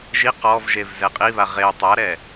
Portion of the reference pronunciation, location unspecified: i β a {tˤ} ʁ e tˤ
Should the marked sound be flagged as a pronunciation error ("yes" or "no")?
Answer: yes